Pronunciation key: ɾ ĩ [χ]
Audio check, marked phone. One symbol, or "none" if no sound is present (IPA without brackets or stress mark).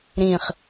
χ